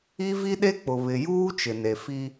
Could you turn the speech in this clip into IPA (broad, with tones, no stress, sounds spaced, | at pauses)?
i˦ v i˦ ɗ e˦ k͡p ʊ˨ β ɪ˨ j uː˦ t͡ʃ ɪ˨ n e˨ f i˦